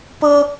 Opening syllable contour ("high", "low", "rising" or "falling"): high